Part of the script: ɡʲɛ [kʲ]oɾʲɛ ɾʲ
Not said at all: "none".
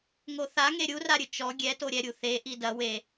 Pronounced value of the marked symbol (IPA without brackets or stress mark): t